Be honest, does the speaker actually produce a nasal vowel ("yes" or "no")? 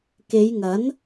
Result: no